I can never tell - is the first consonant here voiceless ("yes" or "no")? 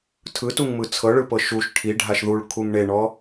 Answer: yes